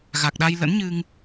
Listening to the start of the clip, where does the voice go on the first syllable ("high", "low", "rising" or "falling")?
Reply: low